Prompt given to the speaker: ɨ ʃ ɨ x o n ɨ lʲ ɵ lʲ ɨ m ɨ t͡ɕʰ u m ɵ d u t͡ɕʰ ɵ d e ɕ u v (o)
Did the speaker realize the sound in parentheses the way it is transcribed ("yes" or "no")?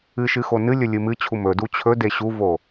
yes